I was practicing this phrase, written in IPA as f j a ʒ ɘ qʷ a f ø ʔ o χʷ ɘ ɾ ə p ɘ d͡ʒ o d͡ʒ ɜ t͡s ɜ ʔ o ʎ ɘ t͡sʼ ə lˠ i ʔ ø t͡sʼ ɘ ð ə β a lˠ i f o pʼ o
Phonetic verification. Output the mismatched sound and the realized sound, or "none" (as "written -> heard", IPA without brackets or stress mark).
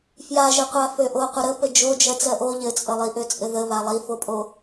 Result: χʷ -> qʷ